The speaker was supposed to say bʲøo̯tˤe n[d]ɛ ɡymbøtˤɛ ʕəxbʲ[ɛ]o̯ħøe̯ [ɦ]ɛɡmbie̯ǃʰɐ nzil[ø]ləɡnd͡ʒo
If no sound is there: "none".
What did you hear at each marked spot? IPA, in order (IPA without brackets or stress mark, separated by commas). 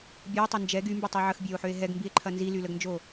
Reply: d͡ʒ, ɛ, ɦ, y